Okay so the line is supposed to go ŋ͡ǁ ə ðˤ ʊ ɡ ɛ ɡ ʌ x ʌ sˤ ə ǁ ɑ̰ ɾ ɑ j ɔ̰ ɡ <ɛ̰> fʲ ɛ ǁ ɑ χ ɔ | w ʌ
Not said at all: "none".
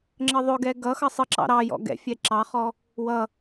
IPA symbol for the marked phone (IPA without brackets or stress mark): ɛ̰